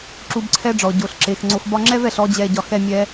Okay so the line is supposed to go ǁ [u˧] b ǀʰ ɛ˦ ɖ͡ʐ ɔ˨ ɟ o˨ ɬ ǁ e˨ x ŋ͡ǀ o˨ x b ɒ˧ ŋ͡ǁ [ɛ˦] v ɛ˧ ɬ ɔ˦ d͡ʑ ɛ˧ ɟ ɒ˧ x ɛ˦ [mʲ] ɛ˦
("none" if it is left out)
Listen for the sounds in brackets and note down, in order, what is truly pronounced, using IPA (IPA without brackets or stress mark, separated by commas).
u˧, ɛ˦, mʲ